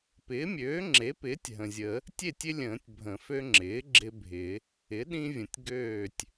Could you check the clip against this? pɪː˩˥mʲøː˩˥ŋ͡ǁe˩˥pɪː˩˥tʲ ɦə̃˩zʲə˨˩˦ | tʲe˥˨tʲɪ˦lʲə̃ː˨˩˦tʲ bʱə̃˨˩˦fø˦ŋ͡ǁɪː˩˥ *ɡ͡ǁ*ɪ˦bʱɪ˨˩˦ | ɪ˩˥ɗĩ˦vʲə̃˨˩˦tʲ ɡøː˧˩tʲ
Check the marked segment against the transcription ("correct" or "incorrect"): correct